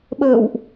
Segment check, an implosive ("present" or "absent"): present